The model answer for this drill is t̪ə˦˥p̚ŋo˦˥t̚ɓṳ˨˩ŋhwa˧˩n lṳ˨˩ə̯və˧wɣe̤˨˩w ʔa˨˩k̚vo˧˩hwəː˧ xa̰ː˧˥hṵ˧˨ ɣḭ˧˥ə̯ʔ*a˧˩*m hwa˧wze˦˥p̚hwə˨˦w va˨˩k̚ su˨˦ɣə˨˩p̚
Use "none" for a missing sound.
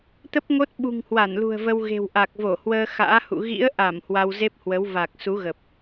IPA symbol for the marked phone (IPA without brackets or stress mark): a˧˩